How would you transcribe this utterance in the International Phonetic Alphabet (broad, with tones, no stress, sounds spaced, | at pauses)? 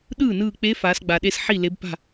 ɗ ɯː˥˩ n ɯː˧˩ k͡p e˧˥ f aː˩˧ s ɡ͡b a˩ ɗ e˧˥ s ħ i˥˩ l e˧˥ b p a̤˥˩